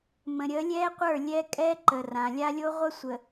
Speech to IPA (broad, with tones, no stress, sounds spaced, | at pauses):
m ə̃˨ ɾʲ ə˨˦ lʲ ɛ˦ qʷ ə˞˦˨ lʲ ɛ˦ kʼ ɛ˦ ǃ ə˨ r ã˨ lʲ a˦ lʲ o˦ ʁʷ ə˦ sʷ ə˨